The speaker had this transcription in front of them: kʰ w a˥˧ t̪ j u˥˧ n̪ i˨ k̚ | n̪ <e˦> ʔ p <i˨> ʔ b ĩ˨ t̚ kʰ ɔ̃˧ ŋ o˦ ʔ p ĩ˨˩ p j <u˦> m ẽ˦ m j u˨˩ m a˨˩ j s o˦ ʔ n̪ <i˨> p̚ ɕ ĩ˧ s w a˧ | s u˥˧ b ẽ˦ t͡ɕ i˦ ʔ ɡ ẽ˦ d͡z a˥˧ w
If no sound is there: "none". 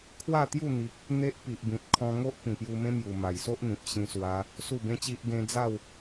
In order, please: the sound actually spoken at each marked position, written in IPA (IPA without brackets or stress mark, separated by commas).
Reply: e˦, i˨, u˧, ĩ˨